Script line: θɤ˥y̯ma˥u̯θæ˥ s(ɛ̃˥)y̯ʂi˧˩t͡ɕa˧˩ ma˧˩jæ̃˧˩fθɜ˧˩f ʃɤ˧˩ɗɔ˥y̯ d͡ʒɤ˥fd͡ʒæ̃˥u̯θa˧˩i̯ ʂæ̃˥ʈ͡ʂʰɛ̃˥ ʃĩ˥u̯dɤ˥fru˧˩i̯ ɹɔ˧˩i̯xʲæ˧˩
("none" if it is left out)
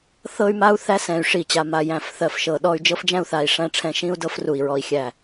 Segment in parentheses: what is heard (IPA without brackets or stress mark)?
ɛ̃˧˩